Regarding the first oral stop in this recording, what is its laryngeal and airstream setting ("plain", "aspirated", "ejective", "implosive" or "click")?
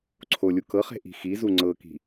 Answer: click